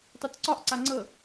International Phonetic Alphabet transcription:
tˤ u t ǀ ɒ ʔ ǀ a ŋ͡ǀ ɤ

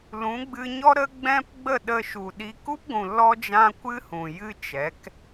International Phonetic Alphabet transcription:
l ũ˨˦ ɡ͡b ɨ˧ ɲ ɔ˦ ɾ ə˦ ɡ͡b ɛ̃˦ p ɡ͡b ə˦˨ ɗ ə˧ ʃ u˨ ɗ i˧ k u˦ p ɡʷ ũ˨ l ɔ˦ d͡ʒ ã˦ kʷ ɨ˦ h ũ˨ j ɨ˦ t͡ʃ ɛ˨˦ k

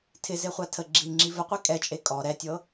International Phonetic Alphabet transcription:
tʰ ɪ z e χʷ a tʰ ə ɡ͡ǁ i ŋ͡ǁ i v ə qʷ e kʼ ɛ t͡ʃʼ e kʼ ɔ ɾ ɛ tʲ ɤ

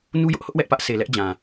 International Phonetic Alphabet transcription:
n u˦ j ʊ˦ ʔ h ʊ˦ ʔ w ɛ˦ ʔ p ä˦ ʔ s e˨ l ɛ˦ ʔ d͡ʑ ã˨

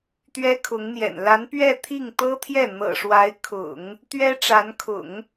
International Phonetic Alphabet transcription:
t̪ ɥ ɛ˥ kʰ ʊ˧˥ ŋ n̪ j ɛ̰˨˩ n l a˧˥ n p ɥ ɛ˥˧ t̪ʰ i˥˩ ŋ t̪ ɤ˥ t̪ʰ j ɛ˥˩ n̪ ɤ̰˨˩ ʂ w a˧˥ ɪ̯ kʰ ʊ̰˨˩˦ ŋ | t̪ ɥ ɛ˥ ʈ͡ʂ a˧˥ n kʰ ʊ̰˨˩˦ ŋ

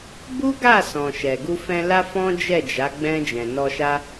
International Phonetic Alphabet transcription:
b u˦ ɡ a˦˨ s ɔ̃˨ ʃ ɛ˨ ɡ u˧ f ɛ̃˧ l a˦ f ɔ̃˦ d͡ʒ ɛ˦˨ d͡ʒ a˨˦ ɡ͡b ɛ̃˧ d͡ʒ ɛ̃˨ n ɔ˧ ʃ a˦

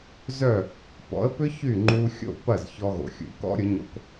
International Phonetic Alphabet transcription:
z œ˥˩ | p ɔ̰˩˥ ə̯ p ʏ˥ ç y˥˩ ŋ͡ǃ u˧ xʲ o̰˥˩ p ɐ˥˩ z ç ɔ˧ ɣ o̰˩ xʲ ṵ˩˥ k ɔ̰˥ ɾʲ ʊ˩˥ ɲ o̰˧ k

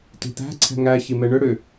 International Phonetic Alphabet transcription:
t i̤ t̪ æ̤ ǀʰ ɛ̤ ŋ æ ç i m ɛ ɳ ʏ ɽ ʏ

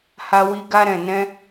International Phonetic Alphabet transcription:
h a˧ w i˧ ɡ a˧ ɾ ɛ̃˨ n ɛ̃˧

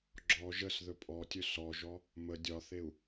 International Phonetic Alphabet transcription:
ɡ͡ǁ ɔ ʒ ə s ð ɵ pʼ ɔ tʲ ɵ s ɔ ʒ ɔ | m ə dʲ ɒ θ e u̯

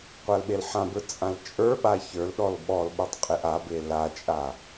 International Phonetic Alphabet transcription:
qʷ a l ɓ e l ħ ã b ə˞ t͡sʼ ã l t͡ʃʼ ə˞ ɓ a ç ə˞ l ɗ ɔ l ɓ ɔ l ɓ ə˞ tˤ qʼ e ʔ a b e l a t͡ʃʼ a

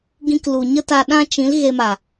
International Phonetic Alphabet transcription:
ɡ ĩ˧ k l u˨ ɲ ə˦ t a˧ ɗ ã˦ t͡ʃ ĩ˨˦ l ɣ e˧ m a˨

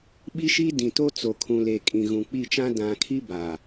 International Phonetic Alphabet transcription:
ɓ i˦ ʃ i˦ d ĩ˨ t o˦ t͡s o˨ kʰ ũ˨ l e˨ kʼ ĩ˨ ɣ ũ˨ k͡p i˦˨ t͡ʃ ã˦ d ã˨ kʰ i˦ b a˨

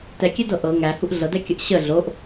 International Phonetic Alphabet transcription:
t ɛ kʲ ɛ d ɤ ʔ ɤ ŋ æ h u ʔ ɮ ɤ d ɛ kʲ ə ʔ ɕ ə ɮ o ʔ

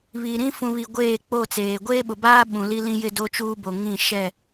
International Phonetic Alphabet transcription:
β i˨ ɾ ĩ˦ f ũ˨ β i˨ ɡʷ eː˦˨ k͡p o˦˨ t͡s eː˨ ɡʷ eː˦ ɓ ʊ˨ b aː˦ ɓ ũ˨ l i˦ l ĩ˦ j ɪ˦ d o˦ t͡ʃ uː˦ b o˨ ŋ ĩ˦˨ ʃ ɛ˦˨

